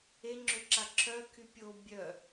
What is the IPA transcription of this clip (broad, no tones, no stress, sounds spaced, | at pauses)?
e ŋ͡ǁ ø ǁ a ǁʰ œ kʰ y pʲ o bʲ œ